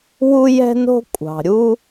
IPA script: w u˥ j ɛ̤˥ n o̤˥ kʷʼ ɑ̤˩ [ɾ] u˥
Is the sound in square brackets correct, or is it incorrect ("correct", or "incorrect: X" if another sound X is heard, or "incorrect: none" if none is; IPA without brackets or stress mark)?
incorrect: ɾʲ